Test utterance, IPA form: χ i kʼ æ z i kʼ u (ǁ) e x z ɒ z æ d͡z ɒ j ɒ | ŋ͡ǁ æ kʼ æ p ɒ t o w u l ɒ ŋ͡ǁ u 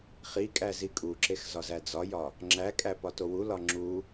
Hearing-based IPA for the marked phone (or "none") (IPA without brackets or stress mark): ǁ